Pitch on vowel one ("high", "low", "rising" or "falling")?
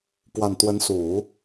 low